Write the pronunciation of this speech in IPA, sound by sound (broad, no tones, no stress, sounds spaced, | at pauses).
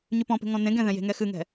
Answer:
ɲ ʉ p ɔ̃ p e̤ ŋ ɔ̃ n ẽ ɡ ɛ̃ ð ɛ̃ j e̤ ŋ ɛ x ɨ ŋ ɛ̤